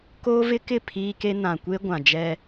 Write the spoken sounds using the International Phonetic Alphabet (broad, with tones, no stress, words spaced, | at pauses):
koː˦vɪ˦kɪ˦˨ pʰiː˦ke˦ nã˨kʷe˦ ɡʷã˨d͡ʒɛ˦